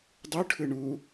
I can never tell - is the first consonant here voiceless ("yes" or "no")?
no